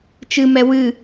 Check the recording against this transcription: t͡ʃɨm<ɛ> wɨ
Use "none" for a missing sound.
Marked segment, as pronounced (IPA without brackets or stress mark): ɛ